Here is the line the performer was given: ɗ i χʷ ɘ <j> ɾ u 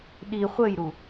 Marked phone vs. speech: correct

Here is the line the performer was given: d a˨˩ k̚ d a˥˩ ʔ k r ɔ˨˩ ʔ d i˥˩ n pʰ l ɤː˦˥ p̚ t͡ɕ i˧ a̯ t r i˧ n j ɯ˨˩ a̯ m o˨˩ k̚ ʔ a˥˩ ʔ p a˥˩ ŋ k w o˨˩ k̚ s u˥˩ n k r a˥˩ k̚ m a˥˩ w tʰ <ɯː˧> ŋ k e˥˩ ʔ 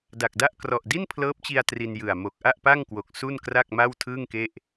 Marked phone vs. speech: incorrect: ɯː˥˩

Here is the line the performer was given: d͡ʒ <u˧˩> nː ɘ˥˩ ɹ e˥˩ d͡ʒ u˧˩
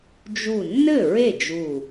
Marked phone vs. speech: correct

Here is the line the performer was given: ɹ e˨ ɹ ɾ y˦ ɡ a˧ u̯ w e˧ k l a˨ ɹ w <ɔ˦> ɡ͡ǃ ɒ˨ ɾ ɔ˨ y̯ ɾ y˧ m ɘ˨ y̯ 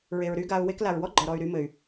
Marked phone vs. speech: correct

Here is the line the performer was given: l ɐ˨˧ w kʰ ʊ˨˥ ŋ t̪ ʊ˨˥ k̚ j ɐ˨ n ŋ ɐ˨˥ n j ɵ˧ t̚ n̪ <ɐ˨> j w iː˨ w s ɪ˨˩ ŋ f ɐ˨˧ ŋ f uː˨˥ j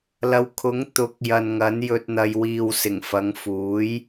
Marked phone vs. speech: correct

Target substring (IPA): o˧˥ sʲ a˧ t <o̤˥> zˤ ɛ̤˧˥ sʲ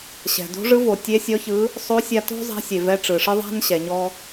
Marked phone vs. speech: correct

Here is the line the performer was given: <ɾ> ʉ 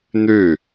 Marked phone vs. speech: incorrect: n̪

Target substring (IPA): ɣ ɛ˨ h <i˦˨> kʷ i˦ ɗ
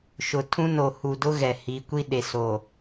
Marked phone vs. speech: incorrect: i˨˦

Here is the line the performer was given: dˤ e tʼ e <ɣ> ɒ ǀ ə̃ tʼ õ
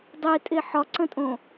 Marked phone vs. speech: incorrect: ħ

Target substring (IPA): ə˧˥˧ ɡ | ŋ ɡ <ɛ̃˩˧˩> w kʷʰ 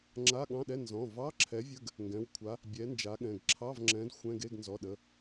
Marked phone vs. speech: correct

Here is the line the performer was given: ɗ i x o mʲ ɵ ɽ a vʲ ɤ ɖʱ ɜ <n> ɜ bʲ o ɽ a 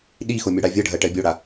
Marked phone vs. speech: incorrect: ʈ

